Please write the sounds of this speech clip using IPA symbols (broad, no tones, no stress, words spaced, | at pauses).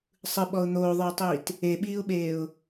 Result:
sˤɯɓɔʊ̯ n̪oːðˤə˞ʊ̯tˤiːt | eɓiːʊ̯ɓeːʊ̯